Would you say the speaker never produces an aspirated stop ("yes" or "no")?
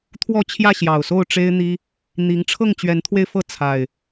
no